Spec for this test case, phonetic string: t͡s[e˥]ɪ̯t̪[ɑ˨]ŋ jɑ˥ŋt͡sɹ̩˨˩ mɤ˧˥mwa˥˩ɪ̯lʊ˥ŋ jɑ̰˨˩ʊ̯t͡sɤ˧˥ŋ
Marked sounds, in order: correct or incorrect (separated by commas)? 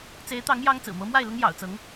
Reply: incorrect, incorrect